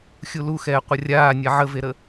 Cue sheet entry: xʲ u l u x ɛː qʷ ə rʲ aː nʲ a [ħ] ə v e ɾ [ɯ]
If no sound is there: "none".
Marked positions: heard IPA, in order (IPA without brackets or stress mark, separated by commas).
ʕ, ə